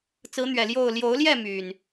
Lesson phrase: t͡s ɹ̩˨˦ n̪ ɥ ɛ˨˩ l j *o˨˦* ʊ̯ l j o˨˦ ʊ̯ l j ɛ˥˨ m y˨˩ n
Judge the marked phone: incorrect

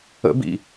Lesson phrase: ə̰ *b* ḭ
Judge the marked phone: correct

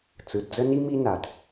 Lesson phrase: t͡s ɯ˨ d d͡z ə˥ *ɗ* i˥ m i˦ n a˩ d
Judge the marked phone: incorrect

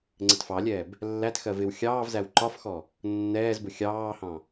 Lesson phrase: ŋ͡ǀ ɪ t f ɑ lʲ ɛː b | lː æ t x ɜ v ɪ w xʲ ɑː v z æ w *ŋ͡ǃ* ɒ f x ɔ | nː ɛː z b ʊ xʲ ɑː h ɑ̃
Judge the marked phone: incorrect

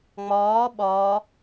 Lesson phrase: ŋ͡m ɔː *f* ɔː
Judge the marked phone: incorrect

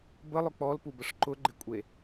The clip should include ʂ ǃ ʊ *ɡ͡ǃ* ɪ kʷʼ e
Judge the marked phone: correct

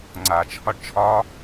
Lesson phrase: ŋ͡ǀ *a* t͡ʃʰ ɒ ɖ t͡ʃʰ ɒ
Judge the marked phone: correct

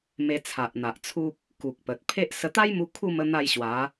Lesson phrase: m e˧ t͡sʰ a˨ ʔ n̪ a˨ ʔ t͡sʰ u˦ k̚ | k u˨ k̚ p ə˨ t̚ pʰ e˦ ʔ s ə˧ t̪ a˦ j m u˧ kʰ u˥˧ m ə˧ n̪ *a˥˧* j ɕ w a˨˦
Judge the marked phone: correct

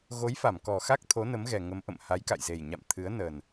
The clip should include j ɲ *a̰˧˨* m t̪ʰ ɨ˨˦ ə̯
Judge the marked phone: correct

